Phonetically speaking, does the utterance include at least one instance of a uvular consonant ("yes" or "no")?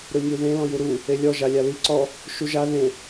no